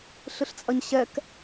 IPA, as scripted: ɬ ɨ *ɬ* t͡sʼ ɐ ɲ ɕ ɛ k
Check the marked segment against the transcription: correct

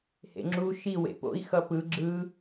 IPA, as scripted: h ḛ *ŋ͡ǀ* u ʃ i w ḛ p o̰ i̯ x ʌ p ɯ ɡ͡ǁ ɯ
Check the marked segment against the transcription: incorrect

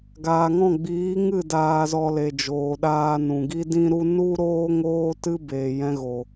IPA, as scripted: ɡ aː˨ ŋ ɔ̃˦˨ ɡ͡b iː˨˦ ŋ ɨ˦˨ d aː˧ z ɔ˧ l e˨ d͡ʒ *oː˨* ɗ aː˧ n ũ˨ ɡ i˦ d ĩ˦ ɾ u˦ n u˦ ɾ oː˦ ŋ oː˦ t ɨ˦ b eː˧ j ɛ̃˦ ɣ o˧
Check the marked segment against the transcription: correct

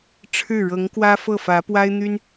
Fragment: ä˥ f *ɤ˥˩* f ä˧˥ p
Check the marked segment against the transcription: correct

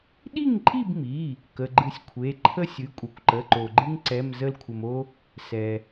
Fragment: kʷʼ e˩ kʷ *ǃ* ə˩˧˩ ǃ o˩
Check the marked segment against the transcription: correct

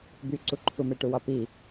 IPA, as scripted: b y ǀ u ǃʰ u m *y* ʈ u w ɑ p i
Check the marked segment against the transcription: incorrect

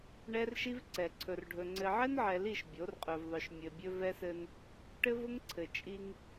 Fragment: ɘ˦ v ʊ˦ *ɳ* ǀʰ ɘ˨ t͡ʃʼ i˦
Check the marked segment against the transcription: incorrect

